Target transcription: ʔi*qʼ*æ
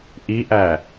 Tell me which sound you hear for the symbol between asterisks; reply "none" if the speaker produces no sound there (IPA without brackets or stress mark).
ʔ